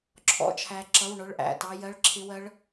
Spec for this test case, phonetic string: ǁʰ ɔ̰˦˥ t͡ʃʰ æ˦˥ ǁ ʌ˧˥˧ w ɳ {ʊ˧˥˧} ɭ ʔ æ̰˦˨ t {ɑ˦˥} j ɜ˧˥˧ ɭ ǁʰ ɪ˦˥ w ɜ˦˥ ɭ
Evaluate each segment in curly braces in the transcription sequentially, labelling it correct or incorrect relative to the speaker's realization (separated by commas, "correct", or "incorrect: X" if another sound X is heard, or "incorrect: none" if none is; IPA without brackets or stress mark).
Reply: correct, correct